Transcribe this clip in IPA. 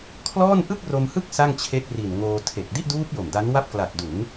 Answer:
kʰ l ɔː˥˩ n ʔ ɯ˥˩ k̚ r o˧ m h ɯ˥˩ k̚ s a˥˩ ŋ t͡ɕʰ e˦˥ k̚ r i˨˩ n ŋ oː˧ tʰ e˨˩ k̚ d i˥˩ ʔ d uː˦˥ p̚ j o˨˩ m d a˦˥ n w a˥˩ p̚ k l a˨˩ t̚ d u˩˦ n

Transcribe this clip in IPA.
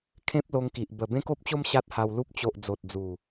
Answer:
kʰ ẽ˦ p̚ l o˧ ŋ k i˨ ʔ b ə˨˩ b ẽ˦ k o˦ p̚ t͡ɕ o˦ m ɕ a˦ t̚ h a˧ w l u˦ p̚ t͡ɕ o˨ ʔ d͡z o˨ t̚ d͡z u˨˩

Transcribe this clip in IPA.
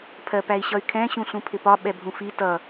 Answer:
pʰ ɜ p æ i̯ ɕ ʌ y̯ kʰ ɛ̃ ɕ ũ ɬ ũ pʰ ɪ p ɒ ɓ ɛ bʱ ũ f i t ʌ

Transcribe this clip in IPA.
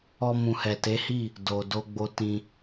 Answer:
ɔ˧ m ũ˨ h ɛ˨ t e˨˦ h i˦˨ | d o˨ d o˧ ɡ͡b o˧ t ĩ˧

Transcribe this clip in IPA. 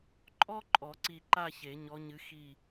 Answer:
ǃʼ ɔ˥ ǃʼ ɔ˨˩˦ ǀ i˧˩ ǃ a˥˧ ç e˨˩˦ ɲ ɔ˧˥ ɲ ɨ˧˥ x i˥˧

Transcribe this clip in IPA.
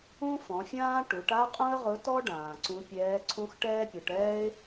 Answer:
ũ˥ f ɔ̃˩˧ fʲ ãː˥ ʈ u˩˧ ʈ a˥ qʼ ũ˥ ə̯ ʁ ʊ˧˥ t ɔ˥ ɖ ãː˩ ǀ ũ˧˥ pʲ ɛː˧˥ ǀʰ ũ˥ x ʈ ɛː˥ pʲ ʊ˩˧ ʈ ɛː˥ ɪ̯

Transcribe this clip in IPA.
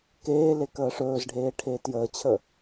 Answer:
k eː l e k əː ʂ ɵː z ɖʱ eː ʈʰ eː t j əː t͡ɕʰ ə

